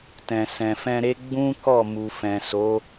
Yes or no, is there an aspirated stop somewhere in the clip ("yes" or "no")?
no